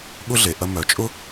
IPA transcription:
ɠ ʊ˥ ɮ e˩ ʔ ɐ˧ m œ˩ t͡ʃʼ ʊ˥

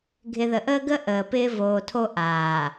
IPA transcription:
ɡʱ ɪ˨ ð ə˨ ʔ əː˦ ɡ ə˦ ʔ əː˨ p ɪː˦ v oː˨ tʰ o˦ ʔ aː˨

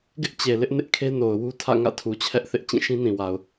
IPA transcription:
ɡ ɪ˦ ʔ t͡ɕ e˨ l ɪ˦ ʔ n ɪ˦ ʔ kʰ e˦ n o˨ ʊ̯ w u˦ tʰ ä̰˦˨ ŋ ä̰˦˨ tʰ u˨ t͡ɕʰ ɛ˦ ʔ θ ɪ˦ ʔ t͡ɕ ĩ˦˨ ʃ ĩ˦ n ĩ˨ w a˨ ʊ̯

